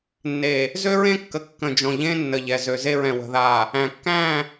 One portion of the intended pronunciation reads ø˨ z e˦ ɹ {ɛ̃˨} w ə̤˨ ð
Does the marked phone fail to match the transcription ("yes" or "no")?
no